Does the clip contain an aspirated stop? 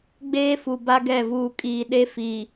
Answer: no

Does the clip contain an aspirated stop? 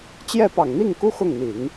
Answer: no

